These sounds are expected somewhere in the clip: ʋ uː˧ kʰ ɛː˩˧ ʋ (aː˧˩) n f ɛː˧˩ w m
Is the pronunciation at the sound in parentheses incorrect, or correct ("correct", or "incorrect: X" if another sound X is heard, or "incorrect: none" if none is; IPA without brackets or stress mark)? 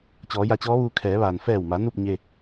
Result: incorrect: aː˩